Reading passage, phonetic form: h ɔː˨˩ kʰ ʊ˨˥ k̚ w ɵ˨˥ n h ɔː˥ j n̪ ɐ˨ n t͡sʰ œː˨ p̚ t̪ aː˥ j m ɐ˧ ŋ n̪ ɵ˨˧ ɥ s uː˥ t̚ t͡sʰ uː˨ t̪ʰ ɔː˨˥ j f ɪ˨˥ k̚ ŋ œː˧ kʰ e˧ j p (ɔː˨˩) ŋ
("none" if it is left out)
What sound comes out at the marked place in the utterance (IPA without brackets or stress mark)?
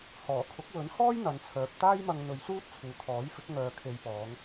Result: ɔː˨˧